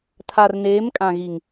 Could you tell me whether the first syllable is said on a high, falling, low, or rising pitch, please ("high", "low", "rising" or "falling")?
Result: low